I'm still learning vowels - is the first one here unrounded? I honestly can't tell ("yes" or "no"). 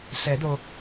yes